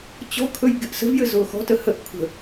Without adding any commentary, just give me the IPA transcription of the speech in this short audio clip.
t͡ɕ ɔ̤ kʰ ɵ j ɡ e ʔ s ə̤ v j ɘ z ʊː x ɔ̤ t ə h ə ʔ kʷʰ ə̤

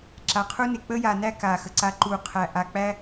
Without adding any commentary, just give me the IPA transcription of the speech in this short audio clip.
ǁ a˨ qʰ u˦ n e˨ k͡p ə˦ j a˨ n æ˦ k a˨ x ə˨ ǀ a˦ ǃ u˦˨ qʰ æ˦ ʔ a˨ k͡p æ˦

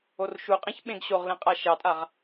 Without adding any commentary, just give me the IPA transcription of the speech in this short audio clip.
o r ʃ u qʼ ẽ ç ɓ ẽ ɡ ɕ o ʁ l ẽ qʼ a ʃ ɑ tʼ a ʁ

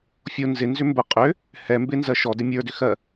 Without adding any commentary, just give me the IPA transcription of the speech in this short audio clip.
fʲ o n z ɪ n z ʏ m b ə qʼ ʏ | h ɛ m b ɪ n z ɜ ʃ ɔ d ɪ mʲ ə˞ d ʏ x ɜ

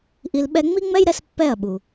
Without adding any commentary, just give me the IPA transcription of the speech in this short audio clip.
ʔ i˧ l ɓ ɛ˦ ŋ͡m i˦ ŋ͡m ɛ˦ j ɾ ɛ˧ s pː ɛ˦˨ ɐ̯ ɓ u˨

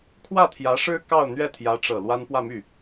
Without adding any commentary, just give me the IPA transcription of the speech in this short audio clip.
kʰ w ä˥˩ t̪ʰ j ä˧˥ ʂ ɻ̩˥ k ɑ˥˧ ʊ̯ n̪ ɥ ɛ˥˩ t̪ʰ j ä˧˥ ʈ͡ʂ ɤ˨˩ l w a˥ n p w ä˥˧ m y˥˩

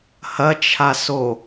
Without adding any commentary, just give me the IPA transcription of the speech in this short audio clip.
h ɐ t͡ʃʰ a s o

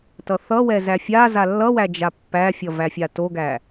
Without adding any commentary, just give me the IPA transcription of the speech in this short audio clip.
t ʌ θ ʌ w ɛ z æ fʲ a z a lː ʌ w æ d͡ʒ a pː æ fʲ ʌ v æ fʲ a t o ɡ æ

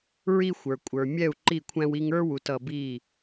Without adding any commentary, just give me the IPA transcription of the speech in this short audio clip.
ɹ i˦ xʷ ə˞˨ kʷʼ ə˞˨ mʲ ɛ˦˨ u̯ ǃ i˦˨ kʷʰ æ̃˦ w i˦ ŋ ə˞˦ w u˨ t ʌ˨ b i˦˨

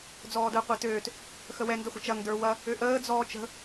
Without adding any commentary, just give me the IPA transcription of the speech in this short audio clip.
d͡z ɔː d əː qʷ ɛ t øː t | x ə w ɛ n d ə χʷ ə̤ t͡ʃ ɐ ŋ d ə˞ w ɐ | ø ʔ əː d͡z ɔː t͡ʃ ə̤

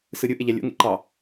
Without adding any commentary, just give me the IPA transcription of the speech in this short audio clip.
s ɯ ɾʲ ɯ ʔ e ʎ æ lʲ o̰ ŋ ḛ ǃ ɑ

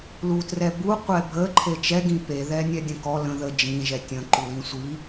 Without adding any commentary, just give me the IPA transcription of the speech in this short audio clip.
l u t r ɛ b u qʷ ɛ bʱ ə ǃʰ e t͡ʃ ɛ ɡ ĩ p e ð ɛ nʲ ɛ dʲ ə̃ k ɔ l ə̃ ð ə d͡ʒ ĩ ʒ ɛ tʲ ə̃ ǃ u l ĩ sʷ i

